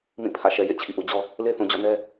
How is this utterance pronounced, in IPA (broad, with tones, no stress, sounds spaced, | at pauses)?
m ĩ˦˨ pʰ ä̰˦˨ ʃ ɛ˨ j ḛ˦˨ t͡ɕʰ ḭ˦˨ ʔ u˨ d͡ʑ ɔ˦ | l e˦ θ ũ˨ d͡ʑ ɔ̰˦˨ n ɛ˦